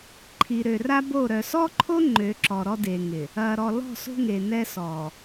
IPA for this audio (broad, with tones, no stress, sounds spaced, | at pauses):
ǃʰ i˨ ɾ ø˨ r a˦ b o˦˨ ɾ œ˨ s ɔ˦ ǃʰ o˦ ŋ͡ǃ ø˨˦ ǁ ɔ˨ ɾ ɔ˦ d e˨ ŋ ɪ˨ | ɐ˨ ɾ ɔ˨ l ɔ̤˦˨ s o̤˦ ŋ e˨ n ɛ˦ s ɔː˨